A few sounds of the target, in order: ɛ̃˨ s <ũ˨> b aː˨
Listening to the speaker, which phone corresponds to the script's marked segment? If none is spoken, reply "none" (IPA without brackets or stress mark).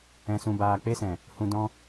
ũ˨